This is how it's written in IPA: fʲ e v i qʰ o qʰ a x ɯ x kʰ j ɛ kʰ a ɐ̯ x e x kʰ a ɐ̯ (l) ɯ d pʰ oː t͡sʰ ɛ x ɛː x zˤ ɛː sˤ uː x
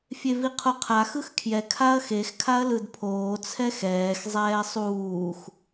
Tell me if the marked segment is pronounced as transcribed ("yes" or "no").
yes